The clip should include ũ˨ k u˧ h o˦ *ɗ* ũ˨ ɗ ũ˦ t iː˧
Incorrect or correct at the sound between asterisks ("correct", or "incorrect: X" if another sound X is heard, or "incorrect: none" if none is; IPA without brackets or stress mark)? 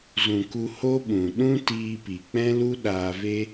incorrect: ɓ